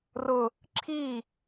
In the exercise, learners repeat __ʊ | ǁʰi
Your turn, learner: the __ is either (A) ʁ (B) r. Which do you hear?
B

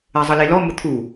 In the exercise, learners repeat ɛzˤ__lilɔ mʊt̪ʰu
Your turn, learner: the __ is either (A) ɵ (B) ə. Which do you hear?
B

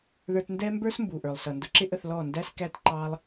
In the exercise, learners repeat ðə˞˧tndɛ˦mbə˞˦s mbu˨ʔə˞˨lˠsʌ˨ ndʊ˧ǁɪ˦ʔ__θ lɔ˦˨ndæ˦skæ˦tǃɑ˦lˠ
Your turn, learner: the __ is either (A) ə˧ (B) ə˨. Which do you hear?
A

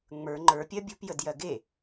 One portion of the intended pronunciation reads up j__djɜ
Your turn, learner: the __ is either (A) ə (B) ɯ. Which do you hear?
A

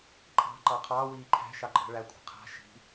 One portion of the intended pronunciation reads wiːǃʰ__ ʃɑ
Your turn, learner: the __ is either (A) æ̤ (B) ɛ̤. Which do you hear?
A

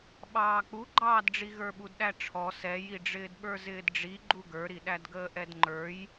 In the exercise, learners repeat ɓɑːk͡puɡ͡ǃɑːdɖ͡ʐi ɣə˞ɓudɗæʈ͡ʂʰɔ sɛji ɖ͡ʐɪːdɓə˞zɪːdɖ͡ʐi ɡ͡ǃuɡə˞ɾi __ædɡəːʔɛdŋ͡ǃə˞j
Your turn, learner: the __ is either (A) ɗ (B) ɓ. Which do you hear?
A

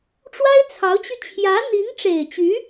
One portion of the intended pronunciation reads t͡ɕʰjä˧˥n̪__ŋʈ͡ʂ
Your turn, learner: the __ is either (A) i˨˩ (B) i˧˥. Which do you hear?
B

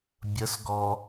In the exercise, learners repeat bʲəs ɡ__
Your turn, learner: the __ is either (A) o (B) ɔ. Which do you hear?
B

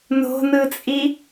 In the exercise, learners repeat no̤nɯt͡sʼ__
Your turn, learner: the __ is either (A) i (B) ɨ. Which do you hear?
A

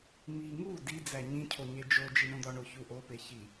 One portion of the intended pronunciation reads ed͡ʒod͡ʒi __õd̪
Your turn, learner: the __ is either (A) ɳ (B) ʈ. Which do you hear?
A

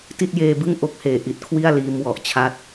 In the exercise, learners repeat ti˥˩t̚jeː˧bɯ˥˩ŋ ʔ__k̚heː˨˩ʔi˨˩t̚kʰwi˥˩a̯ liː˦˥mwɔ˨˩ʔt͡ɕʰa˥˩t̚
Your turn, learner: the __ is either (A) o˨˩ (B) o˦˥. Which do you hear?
B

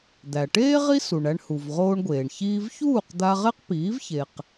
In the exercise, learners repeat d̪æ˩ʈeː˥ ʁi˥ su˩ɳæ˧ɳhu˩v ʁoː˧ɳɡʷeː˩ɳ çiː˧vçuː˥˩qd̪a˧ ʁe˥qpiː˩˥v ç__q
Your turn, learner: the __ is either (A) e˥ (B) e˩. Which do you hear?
B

